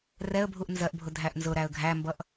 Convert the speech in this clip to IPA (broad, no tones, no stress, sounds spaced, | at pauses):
r ɛ ə̯ bʱ u ʔ n z ɜ ʔ bʱ ʊ dʱ æ ʔ n z ʊ ɾ æ ə̯ ɡʱ æ m b ʌ ʔ